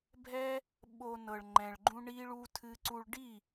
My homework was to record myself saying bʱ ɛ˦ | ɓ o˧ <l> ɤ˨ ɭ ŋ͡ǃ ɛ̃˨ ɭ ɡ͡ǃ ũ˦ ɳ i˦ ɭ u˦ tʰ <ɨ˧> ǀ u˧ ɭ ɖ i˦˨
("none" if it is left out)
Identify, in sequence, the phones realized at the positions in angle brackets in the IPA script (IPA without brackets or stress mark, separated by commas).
n, ɨ˦